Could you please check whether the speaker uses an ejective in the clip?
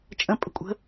yes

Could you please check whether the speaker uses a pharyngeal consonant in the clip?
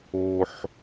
yes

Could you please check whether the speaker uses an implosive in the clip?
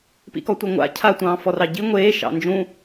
no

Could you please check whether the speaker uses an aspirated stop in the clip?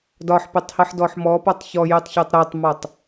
no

